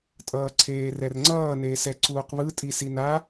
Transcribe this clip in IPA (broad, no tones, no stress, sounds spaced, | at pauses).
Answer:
tʼ ʌː ǀʰ eː r ɛ r ŋ͡ǀ ʌː n eː s ɛ ǀ uː q β ɯ tʼ i s i n a